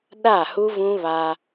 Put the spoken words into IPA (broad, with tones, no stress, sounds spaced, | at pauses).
ɗ a˦˨ h u˦ v ũ˦ β a˦